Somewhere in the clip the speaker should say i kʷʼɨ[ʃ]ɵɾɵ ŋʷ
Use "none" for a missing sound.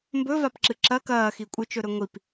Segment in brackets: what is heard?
t͡ʃ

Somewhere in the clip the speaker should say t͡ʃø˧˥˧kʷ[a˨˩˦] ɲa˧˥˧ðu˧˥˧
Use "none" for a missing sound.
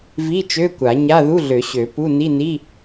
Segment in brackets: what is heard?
a˨˩˦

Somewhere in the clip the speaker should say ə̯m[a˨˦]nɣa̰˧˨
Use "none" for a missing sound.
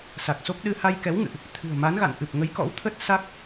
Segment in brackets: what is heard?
a˨˦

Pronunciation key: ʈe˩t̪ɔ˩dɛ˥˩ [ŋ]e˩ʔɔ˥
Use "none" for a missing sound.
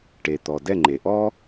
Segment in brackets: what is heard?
ŋ͡ǃ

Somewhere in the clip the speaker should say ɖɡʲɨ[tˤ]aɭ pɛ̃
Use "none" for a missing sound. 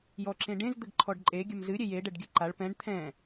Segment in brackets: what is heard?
ǃ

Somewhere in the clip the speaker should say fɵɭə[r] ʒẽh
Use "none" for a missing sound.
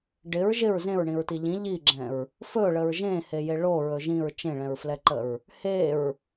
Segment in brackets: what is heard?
ɹ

